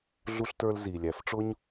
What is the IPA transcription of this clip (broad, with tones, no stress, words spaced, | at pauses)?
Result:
ɮu˦ɬtə˞˦lzi˨ lʲæ˨fʈ͡ʂʊ˦ɲ